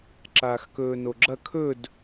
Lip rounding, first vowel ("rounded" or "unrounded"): unrounded